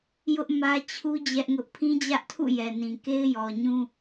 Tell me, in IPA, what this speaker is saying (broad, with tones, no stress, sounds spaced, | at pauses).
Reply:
j ʊ˦ ʔ m ä˦ t͡ɕʰ u˦ d͡ʑ ɛ˦ ʔ ŋ ʊ˦ ʔ pʰ ĩ˦ d͡ʑ ä˦ ʔ tʰ ṵ˦˨ j ɛ˨ n ĩ˨ k e˦ ɪ̯ j ɔ˨ ɲ ũ˦